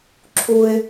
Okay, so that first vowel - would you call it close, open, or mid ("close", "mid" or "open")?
close